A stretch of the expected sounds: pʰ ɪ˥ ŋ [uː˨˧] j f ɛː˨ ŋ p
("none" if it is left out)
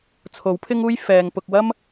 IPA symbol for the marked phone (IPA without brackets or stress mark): uː˥